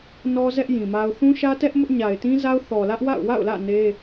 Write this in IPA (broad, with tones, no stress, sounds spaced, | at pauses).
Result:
n ɔ˦ z ɛ˦ ʔ j ĩ˨ m a˦ ʊ̯ θ ũ˦ ʃ ä˦ t ɛ˦ ʔ m ʊ˦ ʔ ɲ a˨ ɪ̯ t ĩ˦ z a˦ ʊ̯ θ ɔ˨ l ä˦ ʔ w a̰˦˨ ʊ̯ w a̰˦˨ ʊ̯ l ä̰˦˨ n e˦